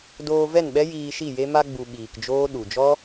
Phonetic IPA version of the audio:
doː˧vɛ˦˨nɓɛ˦ jiː˧ʃi˦˨je˦ ma˧ɡ͡bu˨ ɓiː˨kd͡ʒoː˦ ɗu˨d͡ʒɔ˦

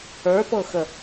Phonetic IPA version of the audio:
ə˞pɤxə

